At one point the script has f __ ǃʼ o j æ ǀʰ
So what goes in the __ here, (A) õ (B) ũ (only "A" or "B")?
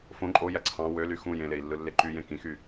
A